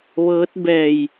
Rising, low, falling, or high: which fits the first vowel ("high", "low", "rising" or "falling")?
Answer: rising